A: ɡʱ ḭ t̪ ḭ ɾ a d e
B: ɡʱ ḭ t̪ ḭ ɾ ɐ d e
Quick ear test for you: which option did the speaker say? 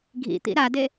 A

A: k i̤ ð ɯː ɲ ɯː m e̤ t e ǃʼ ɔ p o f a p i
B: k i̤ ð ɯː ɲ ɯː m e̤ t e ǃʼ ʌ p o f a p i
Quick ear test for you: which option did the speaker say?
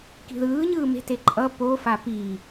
B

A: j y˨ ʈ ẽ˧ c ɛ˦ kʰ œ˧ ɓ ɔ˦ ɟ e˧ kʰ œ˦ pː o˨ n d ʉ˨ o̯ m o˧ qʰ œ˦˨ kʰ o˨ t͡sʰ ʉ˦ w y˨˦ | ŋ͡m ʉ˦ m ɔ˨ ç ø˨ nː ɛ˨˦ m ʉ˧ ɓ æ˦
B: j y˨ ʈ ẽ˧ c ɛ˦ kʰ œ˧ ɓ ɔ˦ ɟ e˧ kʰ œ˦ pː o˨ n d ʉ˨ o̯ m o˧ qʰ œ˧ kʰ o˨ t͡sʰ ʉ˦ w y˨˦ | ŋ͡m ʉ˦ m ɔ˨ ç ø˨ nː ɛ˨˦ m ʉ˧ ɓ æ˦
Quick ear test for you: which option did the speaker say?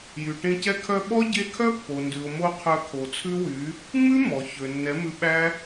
B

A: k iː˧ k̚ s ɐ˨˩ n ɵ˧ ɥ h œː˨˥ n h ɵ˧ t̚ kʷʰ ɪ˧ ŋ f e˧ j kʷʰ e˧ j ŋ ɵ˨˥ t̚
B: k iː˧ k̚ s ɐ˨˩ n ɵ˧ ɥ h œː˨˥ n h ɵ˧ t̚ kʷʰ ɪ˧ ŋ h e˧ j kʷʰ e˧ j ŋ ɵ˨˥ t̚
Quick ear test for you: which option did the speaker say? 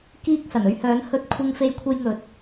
A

